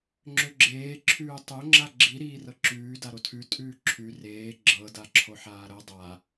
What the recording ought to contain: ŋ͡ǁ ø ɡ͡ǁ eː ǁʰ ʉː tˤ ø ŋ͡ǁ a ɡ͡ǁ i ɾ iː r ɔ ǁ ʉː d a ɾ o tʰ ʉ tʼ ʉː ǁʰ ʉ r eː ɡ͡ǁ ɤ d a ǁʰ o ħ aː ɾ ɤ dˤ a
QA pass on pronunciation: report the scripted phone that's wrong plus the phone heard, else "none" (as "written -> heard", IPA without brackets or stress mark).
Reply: ɔ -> ɤ